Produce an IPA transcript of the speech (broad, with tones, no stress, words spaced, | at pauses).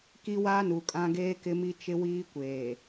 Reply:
ki˦wa˦nu˨kʼã˦ ɡeː˦kɪ˦mi˦ t͡ʃɪ˦wiː˦ kʷeː˨